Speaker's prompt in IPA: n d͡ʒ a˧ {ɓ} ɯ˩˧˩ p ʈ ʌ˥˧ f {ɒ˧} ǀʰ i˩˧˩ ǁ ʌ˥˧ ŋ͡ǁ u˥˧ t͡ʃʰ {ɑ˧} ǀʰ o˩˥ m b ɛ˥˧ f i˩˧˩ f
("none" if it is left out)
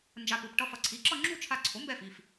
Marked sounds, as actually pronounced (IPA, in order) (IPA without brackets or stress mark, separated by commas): p, ʌ˧, a˧